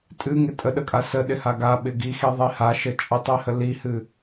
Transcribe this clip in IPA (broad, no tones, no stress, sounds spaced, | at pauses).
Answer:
tʼ ɨ ŋ ɪ tʼ ə ɗ ə kʼ a s ə ɗ ɪ h a ɡ a ɓ ɪ ɡ i x i ðˤ i h a ʃ ə t͡ʃʼ ə tˤ i h ə l i h ɨ